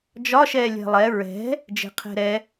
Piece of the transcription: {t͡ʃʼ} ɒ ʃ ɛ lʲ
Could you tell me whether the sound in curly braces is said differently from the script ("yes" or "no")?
yes